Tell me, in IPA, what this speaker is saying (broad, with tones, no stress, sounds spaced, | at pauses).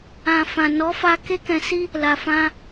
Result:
ã˨ f ã˨ n ɔ˨˦ f a˧ k e˦ k ɛ̃˧ s i˦ | l a˨ f ã˧